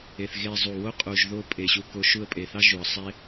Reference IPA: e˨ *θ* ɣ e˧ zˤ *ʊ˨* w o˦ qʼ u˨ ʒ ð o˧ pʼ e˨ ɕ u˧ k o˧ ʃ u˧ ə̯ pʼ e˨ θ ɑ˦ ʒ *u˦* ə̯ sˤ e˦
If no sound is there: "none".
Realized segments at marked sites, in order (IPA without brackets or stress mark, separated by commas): θ, u˨, u˨